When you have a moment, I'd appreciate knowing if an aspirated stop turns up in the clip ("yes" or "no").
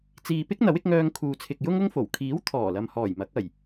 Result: yes